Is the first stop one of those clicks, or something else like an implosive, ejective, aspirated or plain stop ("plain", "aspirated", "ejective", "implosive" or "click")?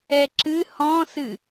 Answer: click